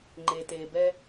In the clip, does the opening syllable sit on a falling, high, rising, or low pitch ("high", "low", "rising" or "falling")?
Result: low